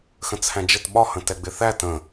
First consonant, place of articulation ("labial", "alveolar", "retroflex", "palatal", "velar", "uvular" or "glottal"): velar